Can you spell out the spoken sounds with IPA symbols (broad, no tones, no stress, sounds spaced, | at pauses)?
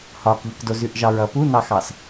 h ɒ k ʎ ə k d o z ʉ ʔ ʒ ɑ ɹ ʌ p u n ɑ x ɑ s